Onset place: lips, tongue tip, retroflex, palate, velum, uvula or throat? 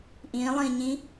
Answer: throat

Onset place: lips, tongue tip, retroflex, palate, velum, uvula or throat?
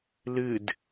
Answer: tongue tip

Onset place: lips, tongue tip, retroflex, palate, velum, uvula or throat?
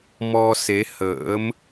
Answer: lips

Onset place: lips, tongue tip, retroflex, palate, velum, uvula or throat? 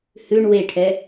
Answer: throat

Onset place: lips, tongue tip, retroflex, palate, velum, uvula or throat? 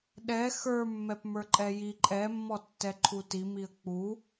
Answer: tongue tip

